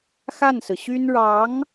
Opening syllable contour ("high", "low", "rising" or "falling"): falling